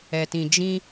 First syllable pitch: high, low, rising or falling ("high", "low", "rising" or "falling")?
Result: low